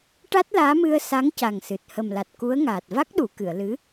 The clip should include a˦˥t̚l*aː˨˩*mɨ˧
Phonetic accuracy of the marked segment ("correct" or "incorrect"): incorrect